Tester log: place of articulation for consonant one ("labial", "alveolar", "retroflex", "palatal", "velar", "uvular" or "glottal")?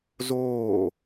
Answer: alveolar